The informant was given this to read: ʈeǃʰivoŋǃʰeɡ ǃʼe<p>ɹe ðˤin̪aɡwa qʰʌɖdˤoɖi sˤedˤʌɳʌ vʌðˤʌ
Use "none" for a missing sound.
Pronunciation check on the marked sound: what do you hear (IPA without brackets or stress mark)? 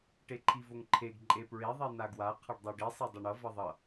p